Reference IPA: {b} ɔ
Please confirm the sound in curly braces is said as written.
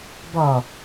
yes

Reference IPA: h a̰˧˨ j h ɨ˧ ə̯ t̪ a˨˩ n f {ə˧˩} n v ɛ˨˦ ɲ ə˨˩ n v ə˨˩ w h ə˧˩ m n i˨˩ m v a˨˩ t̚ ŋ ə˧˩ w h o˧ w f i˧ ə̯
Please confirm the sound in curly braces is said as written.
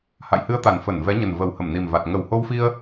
yes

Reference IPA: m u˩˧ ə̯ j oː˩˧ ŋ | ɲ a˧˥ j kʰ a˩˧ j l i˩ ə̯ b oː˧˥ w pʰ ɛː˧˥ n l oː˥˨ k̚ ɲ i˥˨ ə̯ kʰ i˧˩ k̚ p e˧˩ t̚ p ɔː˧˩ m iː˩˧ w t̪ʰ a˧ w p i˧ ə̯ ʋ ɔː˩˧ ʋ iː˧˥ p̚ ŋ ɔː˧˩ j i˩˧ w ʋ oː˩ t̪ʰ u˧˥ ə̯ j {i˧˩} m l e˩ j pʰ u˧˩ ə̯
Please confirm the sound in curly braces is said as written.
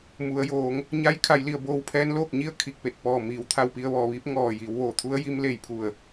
no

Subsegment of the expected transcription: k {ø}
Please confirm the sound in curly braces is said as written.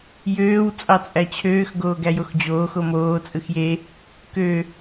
yes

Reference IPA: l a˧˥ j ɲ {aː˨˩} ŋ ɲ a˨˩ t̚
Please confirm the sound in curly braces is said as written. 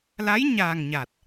yes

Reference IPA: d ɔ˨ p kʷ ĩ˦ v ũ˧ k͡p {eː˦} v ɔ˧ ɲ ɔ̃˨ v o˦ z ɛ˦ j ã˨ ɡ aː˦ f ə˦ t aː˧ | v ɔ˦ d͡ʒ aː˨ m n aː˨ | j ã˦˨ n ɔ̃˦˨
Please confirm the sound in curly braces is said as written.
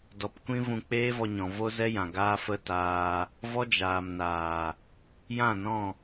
yes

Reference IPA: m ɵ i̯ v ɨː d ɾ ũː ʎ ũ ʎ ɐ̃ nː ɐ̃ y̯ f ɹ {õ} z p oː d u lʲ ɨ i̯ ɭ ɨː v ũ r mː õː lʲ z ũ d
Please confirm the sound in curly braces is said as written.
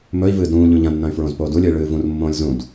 yes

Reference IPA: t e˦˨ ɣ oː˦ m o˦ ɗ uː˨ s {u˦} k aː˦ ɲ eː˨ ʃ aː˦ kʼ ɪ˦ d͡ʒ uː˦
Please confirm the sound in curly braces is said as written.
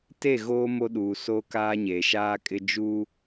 no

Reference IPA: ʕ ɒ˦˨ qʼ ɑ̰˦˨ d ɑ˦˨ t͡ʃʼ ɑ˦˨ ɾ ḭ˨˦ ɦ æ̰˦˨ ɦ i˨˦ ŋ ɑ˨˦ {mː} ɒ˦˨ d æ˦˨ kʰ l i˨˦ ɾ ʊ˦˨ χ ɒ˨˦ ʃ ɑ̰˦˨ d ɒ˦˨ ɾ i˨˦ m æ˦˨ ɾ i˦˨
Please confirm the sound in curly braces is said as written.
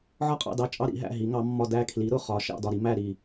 yes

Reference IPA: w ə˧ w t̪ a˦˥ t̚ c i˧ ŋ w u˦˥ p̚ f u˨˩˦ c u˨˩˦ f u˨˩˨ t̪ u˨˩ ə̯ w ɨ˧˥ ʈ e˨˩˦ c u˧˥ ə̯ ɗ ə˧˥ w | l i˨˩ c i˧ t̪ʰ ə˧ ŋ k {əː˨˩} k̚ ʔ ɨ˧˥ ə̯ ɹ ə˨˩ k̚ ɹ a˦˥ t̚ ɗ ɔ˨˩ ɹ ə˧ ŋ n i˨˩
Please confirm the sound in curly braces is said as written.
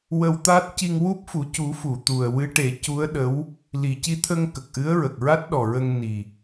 no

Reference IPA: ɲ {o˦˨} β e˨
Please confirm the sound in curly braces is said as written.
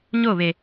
yes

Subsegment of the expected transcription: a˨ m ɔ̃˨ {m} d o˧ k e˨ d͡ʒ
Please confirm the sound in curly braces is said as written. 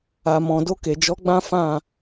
no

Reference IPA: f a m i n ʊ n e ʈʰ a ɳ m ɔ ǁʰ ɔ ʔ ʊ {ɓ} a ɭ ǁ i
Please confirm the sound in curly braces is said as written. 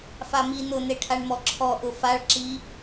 no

